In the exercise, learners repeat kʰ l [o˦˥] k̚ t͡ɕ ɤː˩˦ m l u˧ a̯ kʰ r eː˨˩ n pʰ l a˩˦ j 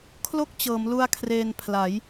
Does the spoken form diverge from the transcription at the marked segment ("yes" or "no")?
yes